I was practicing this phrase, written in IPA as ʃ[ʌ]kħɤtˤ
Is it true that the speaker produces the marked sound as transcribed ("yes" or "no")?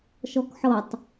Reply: no